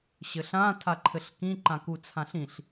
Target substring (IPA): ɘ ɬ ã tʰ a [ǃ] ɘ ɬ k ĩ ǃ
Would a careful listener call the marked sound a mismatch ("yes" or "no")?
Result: yes